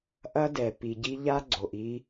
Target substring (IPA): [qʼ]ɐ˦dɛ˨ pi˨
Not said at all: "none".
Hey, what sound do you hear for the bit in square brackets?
ʔ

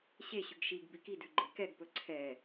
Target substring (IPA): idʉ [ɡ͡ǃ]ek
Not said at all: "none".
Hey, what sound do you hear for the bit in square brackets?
ɡ͡ǃ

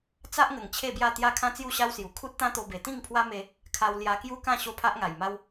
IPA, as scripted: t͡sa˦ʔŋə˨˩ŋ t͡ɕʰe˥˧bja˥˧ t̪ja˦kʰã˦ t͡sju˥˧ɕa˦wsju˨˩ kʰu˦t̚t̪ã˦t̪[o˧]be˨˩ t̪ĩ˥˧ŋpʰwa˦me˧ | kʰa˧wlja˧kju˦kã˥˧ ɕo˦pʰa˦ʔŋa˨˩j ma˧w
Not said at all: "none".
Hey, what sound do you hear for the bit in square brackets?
o˧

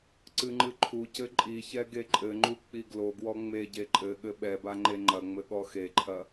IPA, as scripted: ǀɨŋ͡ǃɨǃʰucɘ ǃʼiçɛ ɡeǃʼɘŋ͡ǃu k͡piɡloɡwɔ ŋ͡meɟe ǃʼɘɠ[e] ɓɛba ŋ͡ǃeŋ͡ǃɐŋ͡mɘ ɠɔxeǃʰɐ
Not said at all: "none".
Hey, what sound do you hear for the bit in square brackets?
ɘ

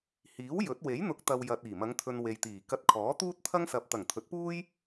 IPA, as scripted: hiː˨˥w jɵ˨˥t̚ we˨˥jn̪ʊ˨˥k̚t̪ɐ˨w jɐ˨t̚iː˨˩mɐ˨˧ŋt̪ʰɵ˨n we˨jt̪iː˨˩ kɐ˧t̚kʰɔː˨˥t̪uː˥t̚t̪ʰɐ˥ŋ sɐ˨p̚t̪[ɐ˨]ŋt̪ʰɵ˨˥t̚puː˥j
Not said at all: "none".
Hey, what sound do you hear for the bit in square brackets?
ɐ˨˩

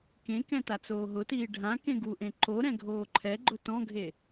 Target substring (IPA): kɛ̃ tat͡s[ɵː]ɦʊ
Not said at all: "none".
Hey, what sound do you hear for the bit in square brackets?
oː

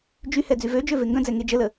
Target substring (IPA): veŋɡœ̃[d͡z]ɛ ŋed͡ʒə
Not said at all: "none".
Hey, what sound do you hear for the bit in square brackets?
d͡z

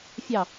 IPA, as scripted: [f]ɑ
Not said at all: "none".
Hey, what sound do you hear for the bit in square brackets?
fʲ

